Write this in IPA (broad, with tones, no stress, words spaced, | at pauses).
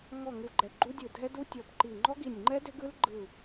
ŋɔ˧˩ ŋu˧˩ɡ͡ǃɛ˧˩ɡ͡ǃu˦˥dʲɯ˧˩ dʱɛ˦˥du˦˥ tʲɔ˧˩bǃi˧˩ ŋ͡ǃɔ˦˥ɡi˧˩nʲŋ͡ǃɛ˦˥ dʏ˦˥ɡɯ˦˥l ɡ͡ǃɯ˧˩